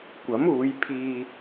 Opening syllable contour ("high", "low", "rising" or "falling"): rising